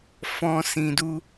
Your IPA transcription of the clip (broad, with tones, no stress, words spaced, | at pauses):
fɔ̃˦sĩ˧du˦